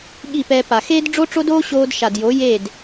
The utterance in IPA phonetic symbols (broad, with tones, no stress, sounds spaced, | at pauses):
ɠ i˦˨ p ɛː˧ p a˨ x eː˦ d ɖ͡ʐ o˦ ʈ͡ʂ o˦ d oː˦ ɕ oː˧ d ʃ a˨ d j o˨˦ j e˦˨ d